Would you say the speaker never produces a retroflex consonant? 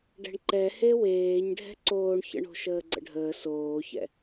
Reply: no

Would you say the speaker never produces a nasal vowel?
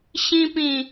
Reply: no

